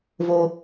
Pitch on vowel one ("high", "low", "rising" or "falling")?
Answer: high